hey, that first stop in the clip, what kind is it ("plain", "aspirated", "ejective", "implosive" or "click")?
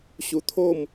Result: aspirated